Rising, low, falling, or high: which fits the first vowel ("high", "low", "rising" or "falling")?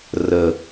low